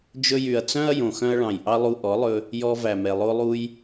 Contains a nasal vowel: yes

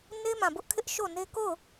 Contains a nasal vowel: yes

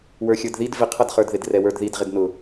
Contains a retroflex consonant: no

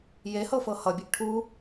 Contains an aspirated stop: yes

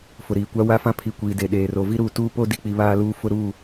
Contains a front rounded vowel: no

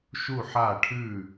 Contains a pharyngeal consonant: yes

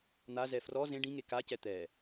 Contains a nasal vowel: yes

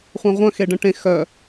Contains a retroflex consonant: yes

